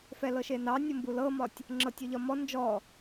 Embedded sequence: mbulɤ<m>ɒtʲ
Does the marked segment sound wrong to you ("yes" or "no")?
no